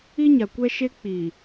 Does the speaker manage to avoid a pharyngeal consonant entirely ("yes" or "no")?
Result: yes